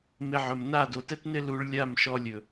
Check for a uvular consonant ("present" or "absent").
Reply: absent